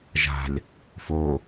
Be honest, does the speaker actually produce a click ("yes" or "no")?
no